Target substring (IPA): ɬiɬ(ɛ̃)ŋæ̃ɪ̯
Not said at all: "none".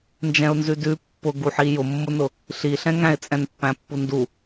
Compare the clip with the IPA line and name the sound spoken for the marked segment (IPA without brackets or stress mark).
ɛ̃